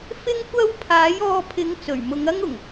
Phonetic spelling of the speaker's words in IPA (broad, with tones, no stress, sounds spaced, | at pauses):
f ɪ˥ ŋ kʷ ɐ˥ w pʰ aː˨˥ j ɔː˧ pʰ ɪ˨˧ ŋ t͡s ɵ˨˩ ɥ m ʊ˨˧ ŋ ɐ˥ ŋ ʊ˨˩ ŋ